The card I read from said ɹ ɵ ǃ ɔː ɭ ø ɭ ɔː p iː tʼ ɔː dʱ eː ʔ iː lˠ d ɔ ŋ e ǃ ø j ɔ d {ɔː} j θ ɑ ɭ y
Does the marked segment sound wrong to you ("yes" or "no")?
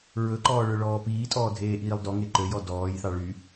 no